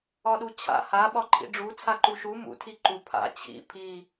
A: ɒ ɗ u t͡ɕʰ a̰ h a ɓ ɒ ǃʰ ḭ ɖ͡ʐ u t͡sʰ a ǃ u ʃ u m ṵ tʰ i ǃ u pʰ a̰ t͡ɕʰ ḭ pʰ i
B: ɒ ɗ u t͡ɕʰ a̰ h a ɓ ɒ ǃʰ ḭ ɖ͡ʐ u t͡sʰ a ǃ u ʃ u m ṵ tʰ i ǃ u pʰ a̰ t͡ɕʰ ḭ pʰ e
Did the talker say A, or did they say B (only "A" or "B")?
A